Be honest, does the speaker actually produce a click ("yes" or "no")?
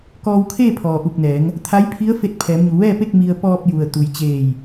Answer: no